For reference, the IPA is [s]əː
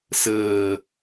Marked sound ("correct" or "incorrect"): correct